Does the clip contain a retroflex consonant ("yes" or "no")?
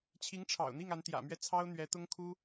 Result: yes